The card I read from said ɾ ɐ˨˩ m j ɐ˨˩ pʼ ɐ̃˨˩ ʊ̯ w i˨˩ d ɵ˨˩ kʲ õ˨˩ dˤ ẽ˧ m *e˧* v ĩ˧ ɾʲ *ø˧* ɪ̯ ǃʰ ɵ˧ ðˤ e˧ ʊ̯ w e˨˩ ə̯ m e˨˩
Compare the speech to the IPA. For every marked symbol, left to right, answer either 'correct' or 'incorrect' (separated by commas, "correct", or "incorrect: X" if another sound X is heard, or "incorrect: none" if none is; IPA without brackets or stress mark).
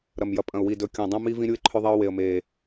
incorrect: i˧, incorrect: u˧